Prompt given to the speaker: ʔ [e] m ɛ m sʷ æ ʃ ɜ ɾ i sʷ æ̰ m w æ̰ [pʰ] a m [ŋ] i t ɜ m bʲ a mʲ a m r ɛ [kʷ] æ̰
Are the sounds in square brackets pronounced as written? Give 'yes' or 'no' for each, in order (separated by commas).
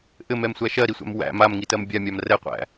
no, no, yes, no